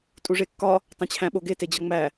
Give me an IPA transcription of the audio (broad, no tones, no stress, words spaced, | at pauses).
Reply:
tʼuʐekːɒ | tˤẽt͡ɕʰæ̃ɓoɡe ted͡ʑɒŋ͡mæ